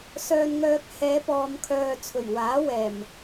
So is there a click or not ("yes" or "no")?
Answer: no